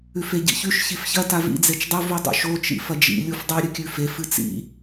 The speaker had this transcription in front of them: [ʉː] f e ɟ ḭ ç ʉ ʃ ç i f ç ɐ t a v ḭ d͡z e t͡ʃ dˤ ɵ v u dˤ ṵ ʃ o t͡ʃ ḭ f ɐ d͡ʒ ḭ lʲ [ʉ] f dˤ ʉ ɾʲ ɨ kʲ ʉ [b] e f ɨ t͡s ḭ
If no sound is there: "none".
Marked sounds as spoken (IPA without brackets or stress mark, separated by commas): ʉ, u, f